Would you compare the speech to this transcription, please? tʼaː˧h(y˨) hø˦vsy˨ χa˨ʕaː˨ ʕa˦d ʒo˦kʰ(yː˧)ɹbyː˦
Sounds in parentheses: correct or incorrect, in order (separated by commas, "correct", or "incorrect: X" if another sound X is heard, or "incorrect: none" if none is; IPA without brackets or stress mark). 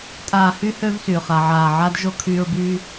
incorrect: y˦, correct